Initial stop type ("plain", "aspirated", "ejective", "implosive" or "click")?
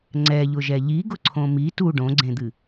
click